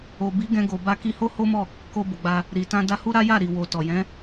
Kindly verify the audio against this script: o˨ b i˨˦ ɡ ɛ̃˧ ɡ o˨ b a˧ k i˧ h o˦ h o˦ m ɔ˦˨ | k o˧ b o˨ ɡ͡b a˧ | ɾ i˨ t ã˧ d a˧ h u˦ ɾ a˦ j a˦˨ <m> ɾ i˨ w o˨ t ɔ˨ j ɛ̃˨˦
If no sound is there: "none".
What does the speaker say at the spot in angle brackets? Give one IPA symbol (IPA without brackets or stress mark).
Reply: none